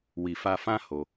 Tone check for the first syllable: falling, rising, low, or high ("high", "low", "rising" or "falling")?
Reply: low